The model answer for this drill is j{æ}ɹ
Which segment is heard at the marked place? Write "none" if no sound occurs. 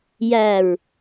æ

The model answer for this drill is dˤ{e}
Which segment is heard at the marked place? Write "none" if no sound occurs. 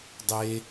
e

